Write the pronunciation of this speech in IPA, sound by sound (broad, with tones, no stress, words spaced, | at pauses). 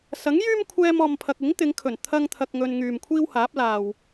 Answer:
sɐ˨˥ŋjyː˥m kʷʰɛː˥mɔː˧mpʰɐ˧k̚ ɪ˨˥ŋt̪ɪ˨˧ŋkʰɵ˨˩n t̪ʰɐ˥ŋt̪ʰɐ˧k̚ŋɵ˧n ŋyː˨mkʷʰiː˥w haː˨˥p̚laː˨w